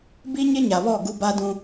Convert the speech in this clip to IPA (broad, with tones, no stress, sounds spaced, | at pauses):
b i˦ ɲ ɪ˦ ɲ a˨ β ɔ˦˨ ɡ u˦ b a˦ d ũ˦